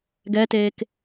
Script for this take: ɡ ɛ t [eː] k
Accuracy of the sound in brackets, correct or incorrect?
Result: correct